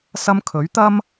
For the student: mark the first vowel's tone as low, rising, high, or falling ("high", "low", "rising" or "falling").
high